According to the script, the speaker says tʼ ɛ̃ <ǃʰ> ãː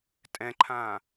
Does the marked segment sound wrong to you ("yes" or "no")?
no